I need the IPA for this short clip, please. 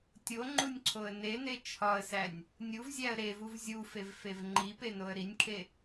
tʲ o ŋ͡ǃ u nʲ ǀʰ o ə̯ n e n e t͡ʃʰ ɒ ə̯ s æ nʲ | nʲ u v zʲ æ ə̯ ɾ e v u v zʲ u f e v f e v ŋ͡ǃ i p e n o ə̯ ɾ i nʲ kʰ e

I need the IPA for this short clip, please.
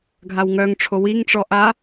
ɡʱ a w ŋ œ ŋ ʈ͡ʂʰ o w i ŋ ʈ͡ʂ ɔ ʔ a

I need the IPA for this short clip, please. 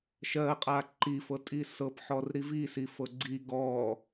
ʃ ɜ qʼ a ǃ i f ɤ tʼ i s ɤ p ħ ɔ r ɾ i v i s i f ɤ ɡ͡ǀ i ɡ ɔ

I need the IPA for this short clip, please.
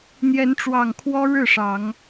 n̪ j ɛ˨˦ n ʈ͡ʂ w ɑ˨˩ ŋ kʰ w ɔ˦ ɻ ɻ̩˥˨ ʂ ɑ˨˦ ŋ

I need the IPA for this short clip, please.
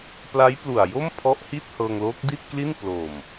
p l a˦˥ j p l u˨˩ a̯ j o˥˩ m pʰ ɔ˦˥ ʔ h i˥˩ t̚ h ɤː˧ ŋ l oː˦˥ k̚ d i˥˩ t̚ k l i˥˩ n p l o˨˩ m

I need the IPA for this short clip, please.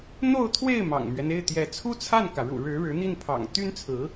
n̪ o˥˧ ʊ̯ t̪ʰ w e˥˩ ɪ̯ m ɑ̰˨˩ ŋ m ɥ ɛ˦ n e˥˩ ɪ̯ t̪ j ɛ˧˥ t͡sʰ u˥ t͡sʰ a˥˩ n k ä˩ ɻ ṵ˨˩ ɻ ɻ̩˧˥ ɻ ɻ̩˧˥ n̪ i˥˩ n pʰ ɑ̰˨˩ ŋ t̪ y˥ n t͡sʰ ɹ̩˧˥

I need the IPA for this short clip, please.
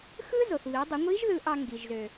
x ɯ˥ z o˩ θ β i˩˧ dˤ ɯ˩˧ ŋʷ i˧˥ ʒ ð ɯ˧˥ ʔ ɑ˧ ŋ ɡ i˩ ʒ z ø˩

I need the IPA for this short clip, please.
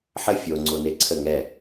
ħ ə fʲ o ŋ͡ǀ o n e ǀʰ ə ŋ ɛ

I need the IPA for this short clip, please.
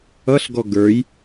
ʌ ɬ ɡ ɔ ɡ ə˞ j

